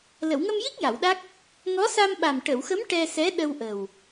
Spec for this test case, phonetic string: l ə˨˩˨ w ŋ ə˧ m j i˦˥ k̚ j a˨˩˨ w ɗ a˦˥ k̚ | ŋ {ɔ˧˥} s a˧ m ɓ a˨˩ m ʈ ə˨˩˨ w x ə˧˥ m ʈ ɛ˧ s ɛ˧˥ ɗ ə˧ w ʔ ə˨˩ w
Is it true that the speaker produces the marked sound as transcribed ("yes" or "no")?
yes